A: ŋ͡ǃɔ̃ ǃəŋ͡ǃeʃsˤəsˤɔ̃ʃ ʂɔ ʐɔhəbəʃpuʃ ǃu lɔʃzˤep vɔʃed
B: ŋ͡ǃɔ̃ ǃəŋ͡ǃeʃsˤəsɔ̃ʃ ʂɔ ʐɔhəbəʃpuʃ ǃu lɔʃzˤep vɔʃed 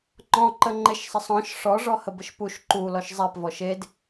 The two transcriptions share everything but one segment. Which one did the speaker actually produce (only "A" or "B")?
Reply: A